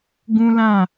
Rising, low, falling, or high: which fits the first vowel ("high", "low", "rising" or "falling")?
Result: high